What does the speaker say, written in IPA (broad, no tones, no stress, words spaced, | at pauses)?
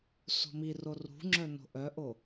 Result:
so̤miro rṳŋ͡ǁœ no̤ʔœʔo